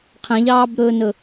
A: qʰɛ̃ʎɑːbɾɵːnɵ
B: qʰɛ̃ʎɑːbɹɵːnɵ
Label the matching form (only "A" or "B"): A